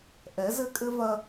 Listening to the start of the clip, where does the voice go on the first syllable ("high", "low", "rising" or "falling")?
rising